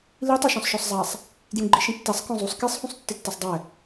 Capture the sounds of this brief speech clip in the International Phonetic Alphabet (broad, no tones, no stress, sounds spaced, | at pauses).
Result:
l i tˤ u ʃ ɔ̃ sˤ ʃ ɔ sˤ zˤ a sˤ | d j ũ ɡ͡ǃ i ʃ ĩ tː ɛ sˤ k ɔ̃ zˤ u sˤ k e sˤ h ũ sˤ tː ɪ tː ɛ sˤ dˤ ɛ